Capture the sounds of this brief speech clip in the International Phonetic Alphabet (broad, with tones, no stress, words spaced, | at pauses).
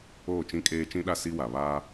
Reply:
oː˦˨t͡ʃĩ˦ kʼeː˦ t͡ʃĩ˦ɗa˦ si˦wa˨ βaː˦